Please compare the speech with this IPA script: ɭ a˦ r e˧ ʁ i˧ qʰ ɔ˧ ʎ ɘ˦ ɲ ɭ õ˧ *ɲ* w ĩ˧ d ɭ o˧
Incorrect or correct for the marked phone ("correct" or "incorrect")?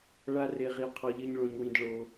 correct